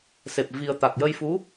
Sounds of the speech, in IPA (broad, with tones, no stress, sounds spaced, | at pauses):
s e˨˩ p̚ v i˧ ə̯ t̪ a˨˩ k̚ j ə˧ j f u˧˥